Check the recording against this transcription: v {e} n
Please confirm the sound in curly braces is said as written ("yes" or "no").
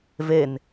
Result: yes